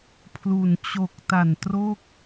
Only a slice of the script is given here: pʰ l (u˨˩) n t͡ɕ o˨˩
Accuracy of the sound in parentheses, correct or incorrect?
correct